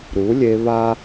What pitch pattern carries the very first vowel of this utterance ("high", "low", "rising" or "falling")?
rising